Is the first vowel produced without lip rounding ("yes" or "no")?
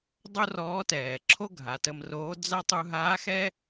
no